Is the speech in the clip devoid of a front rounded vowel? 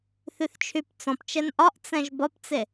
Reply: no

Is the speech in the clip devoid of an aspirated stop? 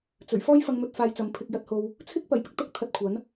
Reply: no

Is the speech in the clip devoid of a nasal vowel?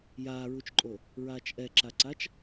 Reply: yes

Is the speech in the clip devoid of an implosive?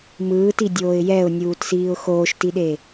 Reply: no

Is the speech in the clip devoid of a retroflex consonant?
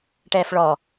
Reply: no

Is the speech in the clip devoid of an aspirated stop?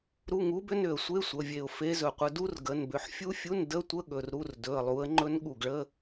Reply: yes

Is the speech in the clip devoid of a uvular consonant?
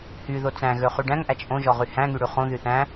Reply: no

